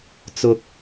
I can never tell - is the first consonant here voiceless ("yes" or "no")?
yes